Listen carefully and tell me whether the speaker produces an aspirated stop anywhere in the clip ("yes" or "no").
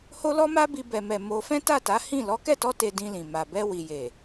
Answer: no